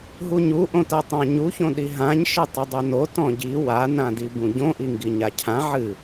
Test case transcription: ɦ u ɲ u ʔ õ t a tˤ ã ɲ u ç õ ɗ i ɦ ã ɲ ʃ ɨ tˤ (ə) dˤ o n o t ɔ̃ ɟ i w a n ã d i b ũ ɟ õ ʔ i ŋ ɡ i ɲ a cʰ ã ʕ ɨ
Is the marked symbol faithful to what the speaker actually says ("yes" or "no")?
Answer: no